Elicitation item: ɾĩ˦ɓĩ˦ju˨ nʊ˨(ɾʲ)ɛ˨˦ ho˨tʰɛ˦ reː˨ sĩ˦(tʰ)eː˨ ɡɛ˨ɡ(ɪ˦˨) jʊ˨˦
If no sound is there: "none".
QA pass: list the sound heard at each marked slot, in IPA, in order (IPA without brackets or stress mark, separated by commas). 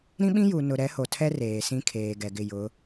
ɾ, kʰ, ɪ˦˨